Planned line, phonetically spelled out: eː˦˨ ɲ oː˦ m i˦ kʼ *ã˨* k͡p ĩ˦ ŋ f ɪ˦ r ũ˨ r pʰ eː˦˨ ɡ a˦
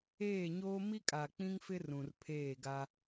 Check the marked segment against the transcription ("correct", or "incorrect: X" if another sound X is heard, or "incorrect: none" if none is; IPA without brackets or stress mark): incorrect: a˨